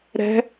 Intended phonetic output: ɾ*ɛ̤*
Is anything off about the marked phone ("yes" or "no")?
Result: no